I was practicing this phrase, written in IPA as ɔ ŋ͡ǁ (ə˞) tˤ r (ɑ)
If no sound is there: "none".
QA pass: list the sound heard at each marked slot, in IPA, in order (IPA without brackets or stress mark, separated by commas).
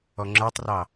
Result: ə˞, ɑ